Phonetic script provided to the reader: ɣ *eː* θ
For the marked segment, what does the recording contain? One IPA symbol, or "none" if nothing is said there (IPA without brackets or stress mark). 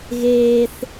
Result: eː